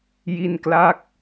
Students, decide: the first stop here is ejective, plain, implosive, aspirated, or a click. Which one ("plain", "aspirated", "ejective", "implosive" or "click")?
plain